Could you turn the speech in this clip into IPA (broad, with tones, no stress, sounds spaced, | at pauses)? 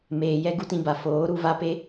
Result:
m eː˨ j ɛ˦ ɡ u˦ t ĩ˧ b a˨ f oː˨˦ ɾ u˧ v a˦ p e˦